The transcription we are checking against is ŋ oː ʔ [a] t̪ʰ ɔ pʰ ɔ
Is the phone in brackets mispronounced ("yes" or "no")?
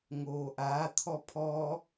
no